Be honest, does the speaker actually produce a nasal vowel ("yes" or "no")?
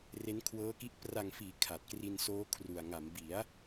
no